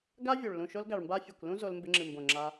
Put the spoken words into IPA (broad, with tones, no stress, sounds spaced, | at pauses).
ɡ a˦ vʲ u˨ ɭ l ũ˨ ʃ o˧ l ɡ a˨ ɭ m b a˧ fʲ ɨ˨ kʷ l ũ˦ z o˧ l m b ɪ˧ ŋ͡ǁ ɨ˨ m b õ˨ ŋ͡ǁ a˧